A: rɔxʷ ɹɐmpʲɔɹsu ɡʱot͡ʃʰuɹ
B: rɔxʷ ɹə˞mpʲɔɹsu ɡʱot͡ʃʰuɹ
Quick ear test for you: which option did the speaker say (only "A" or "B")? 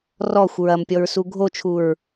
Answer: A